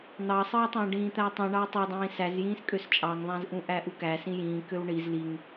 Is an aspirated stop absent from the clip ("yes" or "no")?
yes